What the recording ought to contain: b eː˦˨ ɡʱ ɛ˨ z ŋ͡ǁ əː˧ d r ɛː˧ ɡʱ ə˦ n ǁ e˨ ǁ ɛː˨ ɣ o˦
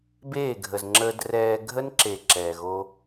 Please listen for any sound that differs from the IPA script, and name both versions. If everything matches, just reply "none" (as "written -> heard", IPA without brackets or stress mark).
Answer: ɛ˨ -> ə˨